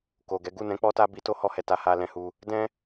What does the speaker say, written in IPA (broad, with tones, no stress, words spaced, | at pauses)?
ko˨ɡɛ˨˦ ɡu˦˨nɛ̃˨˦ k͡pɔ˦ta˦bi˧ to˦ hɔ˦hɛ˧ta˧ ha˦ lɛ̃˧hu˧ | dɛ̃˦